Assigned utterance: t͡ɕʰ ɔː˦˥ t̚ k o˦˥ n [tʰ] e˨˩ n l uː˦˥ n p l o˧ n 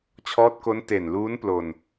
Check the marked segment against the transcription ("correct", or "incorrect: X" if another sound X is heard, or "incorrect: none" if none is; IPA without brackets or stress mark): incorrect: t